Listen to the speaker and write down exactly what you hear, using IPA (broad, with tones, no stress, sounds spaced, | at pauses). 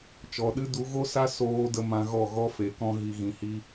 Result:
t͡ʃ ɔ˨ ɗ ɨ˦ d u˨˦ ɣ o˦ s a˦ s oː˧ d ə˧ m ã˧ ɣ ɔ˦˨ ɣ ɔ˦ f e˨ k ɔ̃˧ ɣ i˨ ɣ ĩ˨ h i˧